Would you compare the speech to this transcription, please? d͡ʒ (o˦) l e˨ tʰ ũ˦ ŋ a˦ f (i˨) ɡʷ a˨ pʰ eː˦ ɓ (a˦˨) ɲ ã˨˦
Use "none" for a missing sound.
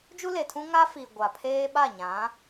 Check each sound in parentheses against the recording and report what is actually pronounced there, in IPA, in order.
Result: u˦, i˨, a˦˨

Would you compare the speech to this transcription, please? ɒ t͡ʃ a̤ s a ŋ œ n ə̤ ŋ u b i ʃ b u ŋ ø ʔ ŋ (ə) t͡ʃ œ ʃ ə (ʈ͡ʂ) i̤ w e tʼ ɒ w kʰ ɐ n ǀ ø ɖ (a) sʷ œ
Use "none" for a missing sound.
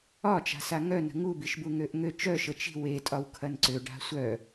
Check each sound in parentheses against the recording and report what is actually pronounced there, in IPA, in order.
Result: ø, t͡ʃ, a̤

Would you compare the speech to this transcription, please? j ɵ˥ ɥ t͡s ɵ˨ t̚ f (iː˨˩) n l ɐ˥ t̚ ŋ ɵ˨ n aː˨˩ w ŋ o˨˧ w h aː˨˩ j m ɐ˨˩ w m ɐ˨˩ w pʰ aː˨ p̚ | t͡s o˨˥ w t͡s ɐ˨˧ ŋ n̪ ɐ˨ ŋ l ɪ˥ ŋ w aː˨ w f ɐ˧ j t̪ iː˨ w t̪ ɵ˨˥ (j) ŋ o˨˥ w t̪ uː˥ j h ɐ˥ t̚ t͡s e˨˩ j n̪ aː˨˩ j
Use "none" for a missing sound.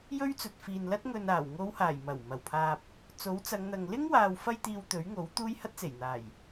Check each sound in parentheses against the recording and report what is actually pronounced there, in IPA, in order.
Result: iː˨, ɥ

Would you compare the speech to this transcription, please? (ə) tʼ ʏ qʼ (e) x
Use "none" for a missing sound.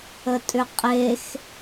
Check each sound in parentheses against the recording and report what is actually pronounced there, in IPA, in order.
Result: ə, e

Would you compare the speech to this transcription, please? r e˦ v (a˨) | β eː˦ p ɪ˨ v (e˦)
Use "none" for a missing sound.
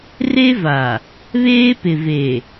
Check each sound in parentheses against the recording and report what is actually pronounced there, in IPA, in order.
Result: a˨, e˨

